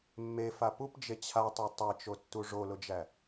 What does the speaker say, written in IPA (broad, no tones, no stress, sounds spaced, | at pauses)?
mː e f a p u p d͡ʒ e t͡ɕʰ a tˤ e tˤ e t͡ʃ o tː u ʐ o l ʊ d͡ʒ æ